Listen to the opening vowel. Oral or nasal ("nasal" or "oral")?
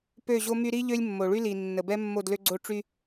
oral